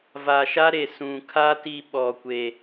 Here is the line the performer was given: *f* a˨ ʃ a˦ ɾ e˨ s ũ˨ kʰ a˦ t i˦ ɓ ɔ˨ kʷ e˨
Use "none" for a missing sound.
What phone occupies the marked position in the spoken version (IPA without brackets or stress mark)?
v